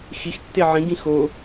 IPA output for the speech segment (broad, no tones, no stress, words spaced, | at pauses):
xixtːe ʕĩɡĩ xo